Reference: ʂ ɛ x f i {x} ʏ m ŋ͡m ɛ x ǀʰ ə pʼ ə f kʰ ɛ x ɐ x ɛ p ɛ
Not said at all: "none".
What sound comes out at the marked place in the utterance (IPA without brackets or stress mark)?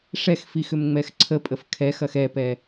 x